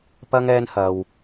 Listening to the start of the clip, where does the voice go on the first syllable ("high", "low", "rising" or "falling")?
high